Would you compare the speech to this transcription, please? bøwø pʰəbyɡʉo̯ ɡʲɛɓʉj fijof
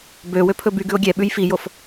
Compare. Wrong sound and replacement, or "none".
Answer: ə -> ɵ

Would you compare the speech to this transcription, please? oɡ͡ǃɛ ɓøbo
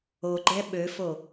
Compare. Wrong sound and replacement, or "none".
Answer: b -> f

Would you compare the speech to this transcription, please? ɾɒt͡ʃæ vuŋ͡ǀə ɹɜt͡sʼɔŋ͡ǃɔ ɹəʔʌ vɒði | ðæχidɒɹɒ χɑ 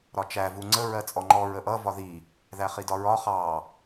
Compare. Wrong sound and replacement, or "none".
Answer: none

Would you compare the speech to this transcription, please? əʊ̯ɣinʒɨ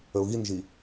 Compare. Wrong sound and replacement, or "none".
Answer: ɨ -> i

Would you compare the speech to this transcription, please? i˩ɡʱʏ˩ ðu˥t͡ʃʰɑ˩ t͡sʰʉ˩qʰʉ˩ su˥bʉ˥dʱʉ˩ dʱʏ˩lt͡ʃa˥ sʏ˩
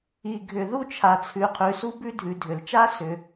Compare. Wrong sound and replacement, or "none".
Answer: ɑ˩ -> a˩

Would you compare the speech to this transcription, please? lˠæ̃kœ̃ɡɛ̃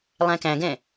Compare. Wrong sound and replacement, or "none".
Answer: œ̃ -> æ̃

